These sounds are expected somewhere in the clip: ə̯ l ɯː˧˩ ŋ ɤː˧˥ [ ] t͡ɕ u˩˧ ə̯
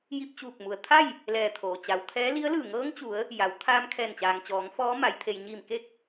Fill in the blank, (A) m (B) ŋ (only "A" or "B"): B